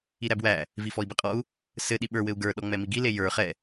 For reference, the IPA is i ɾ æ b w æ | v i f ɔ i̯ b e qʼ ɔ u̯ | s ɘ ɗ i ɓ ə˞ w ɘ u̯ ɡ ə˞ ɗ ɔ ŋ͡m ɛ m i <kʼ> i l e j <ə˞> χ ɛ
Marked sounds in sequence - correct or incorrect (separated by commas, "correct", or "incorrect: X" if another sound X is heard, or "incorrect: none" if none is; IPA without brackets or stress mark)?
incorrect: ɡ, correct